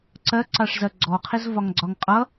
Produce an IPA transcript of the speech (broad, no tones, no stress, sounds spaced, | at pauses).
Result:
ǀ ɜ ǀ ɑ ʂ z ɜ ɡ͡ǀ ɔ qʰ ɪ z v ɒ ŋ ɡ͡ǀ ɒ ŋ qʼ ʌ